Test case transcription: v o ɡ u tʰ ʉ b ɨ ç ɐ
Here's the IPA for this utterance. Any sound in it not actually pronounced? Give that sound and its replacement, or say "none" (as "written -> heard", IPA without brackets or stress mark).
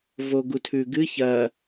b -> ɡ